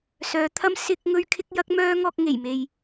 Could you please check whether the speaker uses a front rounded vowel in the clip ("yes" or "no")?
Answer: yes